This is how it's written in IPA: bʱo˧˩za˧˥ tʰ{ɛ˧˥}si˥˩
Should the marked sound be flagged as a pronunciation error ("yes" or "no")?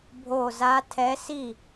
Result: no